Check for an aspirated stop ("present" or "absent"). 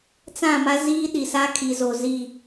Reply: present